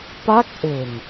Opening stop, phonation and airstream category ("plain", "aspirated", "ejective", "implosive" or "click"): plain